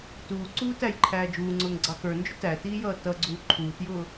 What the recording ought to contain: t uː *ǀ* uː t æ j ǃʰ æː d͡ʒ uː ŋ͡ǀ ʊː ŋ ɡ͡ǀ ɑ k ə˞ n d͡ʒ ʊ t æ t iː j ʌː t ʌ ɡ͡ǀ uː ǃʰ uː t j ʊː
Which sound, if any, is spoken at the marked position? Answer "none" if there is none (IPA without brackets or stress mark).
ǀ